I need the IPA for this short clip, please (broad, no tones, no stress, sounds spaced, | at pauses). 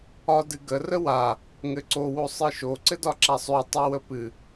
ɒ d ɨ ɡ ə r ə w a | ŋ ɘ ǀ o w o sˤ ɨ ʃ o ǀ ɘ d ɒ ǁ a sˤ ø tˤ o w ə p ɨ